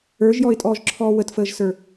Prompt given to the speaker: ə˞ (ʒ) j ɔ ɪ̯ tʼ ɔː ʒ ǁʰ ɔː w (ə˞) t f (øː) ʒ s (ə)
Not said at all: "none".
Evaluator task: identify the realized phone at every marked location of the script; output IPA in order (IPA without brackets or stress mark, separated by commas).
ʒ, ə, əː, ə˞